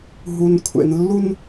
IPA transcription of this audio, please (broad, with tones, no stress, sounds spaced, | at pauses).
ɦ u˨ n kʷʰ ḛ˨ n lː u˦ n